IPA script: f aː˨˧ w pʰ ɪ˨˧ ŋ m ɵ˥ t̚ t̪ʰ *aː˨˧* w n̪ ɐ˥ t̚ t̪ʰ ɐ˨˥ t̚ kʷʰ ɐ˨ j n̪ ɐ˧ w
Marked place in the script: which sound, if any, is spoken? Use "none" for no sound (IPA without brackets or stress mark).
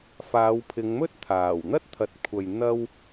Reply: aː˨˩